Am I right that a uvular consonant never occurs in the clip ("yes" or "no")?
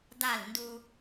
yes